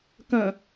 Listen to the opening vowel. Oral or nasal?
nasal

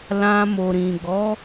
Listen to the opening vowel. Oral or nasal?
nasal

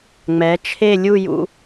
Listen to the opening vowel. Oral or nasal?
oral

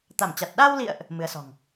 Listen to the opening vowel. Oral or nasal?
oral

